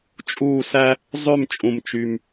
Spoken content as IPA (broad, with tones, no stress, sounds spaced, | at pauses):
t͡ʃʼ uː˥˧ s æ˥ | zˤ ø˥˧ m t͡ʃʼ ũ˨ m t͡ʃ y˨ m